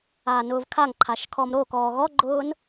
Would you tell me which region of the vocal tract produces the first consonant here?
tongue tip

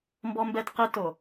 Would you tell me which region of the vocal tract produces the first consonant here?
lips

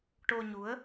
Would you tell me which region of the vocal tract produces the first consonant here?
retroflex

